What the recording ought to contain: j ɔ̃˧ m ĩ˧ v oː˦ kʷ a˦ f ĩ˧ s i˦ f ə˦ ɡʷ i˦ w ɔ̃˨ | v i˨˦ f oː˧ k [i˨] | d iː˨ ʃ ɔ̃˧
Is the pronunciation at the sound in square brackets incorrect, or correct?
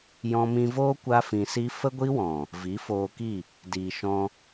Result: incorrect